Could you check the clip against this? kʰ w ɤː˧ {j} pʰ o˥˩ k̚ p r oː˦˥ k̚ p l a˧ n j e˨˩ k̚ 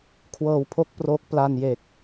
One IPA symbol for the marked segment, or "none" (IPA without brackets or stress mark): w